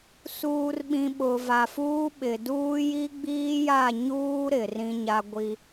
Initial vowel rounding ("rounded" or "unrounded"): rounded